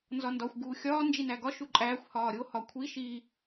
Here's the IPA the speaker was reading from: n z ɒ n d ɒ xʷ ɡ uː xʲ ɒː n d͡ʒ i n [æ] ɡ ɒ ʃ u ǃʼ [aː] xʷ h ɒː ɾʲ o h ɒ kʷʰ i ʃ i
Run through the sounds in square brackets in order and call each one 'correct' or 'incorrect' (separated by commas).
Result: correct, incorrect